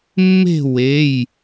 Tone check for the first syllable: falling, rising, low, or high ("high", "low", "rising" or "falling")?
falling